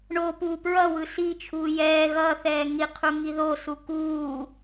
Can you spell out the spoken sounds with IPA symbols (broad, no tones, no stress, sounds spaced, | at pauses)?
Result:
ɳ o p uː p ɹ ʌ w ɯ s i t͡ʃʰ uː j ɛː ɣ ʌ θ ɛː ŋ i qʰ u ŋ i ð o s u k uː